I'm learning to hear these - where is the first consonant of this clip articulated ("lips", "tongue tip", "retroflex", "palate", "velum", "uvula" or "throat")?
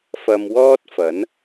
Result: lips